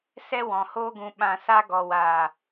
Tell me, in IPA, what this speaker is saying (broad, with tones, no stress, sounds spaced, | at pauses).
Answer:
s ɛ˦ w ɔ̃˨ h oː˦ ɡ ũ˧ ɓ ã˧ s a˧ ɡ ɔ˨ w aː˨